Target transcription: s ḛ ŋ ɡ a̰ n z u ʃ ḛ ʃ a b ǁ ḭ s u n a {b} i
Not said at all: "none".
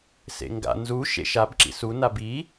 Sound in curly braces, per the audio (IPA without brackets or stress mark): b